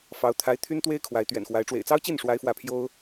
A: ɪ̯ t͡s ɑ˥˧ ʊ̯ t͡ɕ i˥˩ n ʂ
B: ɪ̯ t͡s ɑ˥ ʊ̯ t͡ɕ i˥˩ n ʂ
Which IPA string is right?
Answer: B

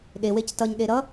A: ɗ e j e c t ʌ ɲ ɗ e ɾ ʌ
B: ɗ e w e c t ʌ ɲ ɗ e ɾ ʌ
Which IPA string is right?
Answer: B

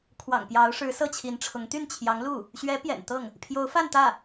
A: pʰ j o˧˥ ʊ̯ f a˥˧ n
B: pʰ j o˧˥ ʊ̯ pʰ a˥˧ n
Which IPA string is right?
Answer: A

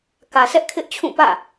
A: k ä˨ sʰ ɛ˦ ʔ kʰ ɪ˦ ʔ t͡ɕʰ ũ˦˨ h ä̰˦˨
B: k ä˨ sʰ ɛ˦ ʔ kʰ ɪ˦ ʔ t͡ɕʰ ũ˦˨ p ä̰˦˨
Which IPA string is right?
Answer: B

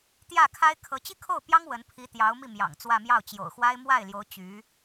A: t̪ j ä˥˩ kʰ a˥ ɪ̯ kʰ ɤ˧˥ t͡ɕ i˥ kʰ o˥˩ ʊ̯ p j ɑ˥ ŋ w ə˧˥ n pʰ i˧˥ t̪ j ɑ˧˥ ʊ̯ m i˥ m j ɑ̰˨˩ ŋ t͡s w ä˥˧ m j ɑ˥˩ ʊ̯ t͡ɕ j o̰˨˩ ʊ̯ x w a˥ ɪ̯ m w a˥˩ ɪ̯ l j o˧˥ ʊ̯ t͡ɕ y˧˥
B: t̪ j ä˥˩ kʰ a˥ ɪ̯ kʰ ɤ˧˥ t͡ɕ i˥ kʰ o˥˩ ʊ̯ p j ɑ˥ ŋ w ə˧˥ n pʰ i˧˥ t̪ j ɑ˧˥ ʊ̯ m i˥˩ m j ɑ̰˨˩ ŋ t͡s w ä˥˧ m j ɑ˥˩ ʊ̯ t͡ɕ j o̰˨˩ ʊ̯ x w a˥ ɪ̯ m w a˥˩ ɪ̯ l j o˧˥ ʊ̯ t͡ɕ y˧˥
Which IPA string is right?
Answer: B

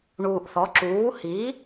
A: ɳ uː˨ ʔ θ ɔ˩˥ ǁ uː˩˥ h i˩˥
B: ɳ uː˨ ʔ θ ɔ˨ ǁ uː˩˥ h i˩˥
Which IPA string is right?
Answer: A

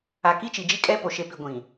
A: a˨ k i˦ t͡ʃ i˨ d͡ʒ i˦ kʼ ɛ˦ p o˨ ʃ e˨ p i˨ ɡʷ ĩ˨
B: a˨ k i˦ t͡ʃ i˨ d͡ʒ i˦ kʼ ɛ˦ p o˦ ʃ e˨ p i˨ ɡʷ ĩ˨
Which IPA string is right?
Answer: A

